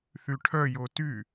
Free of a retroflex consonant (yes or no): no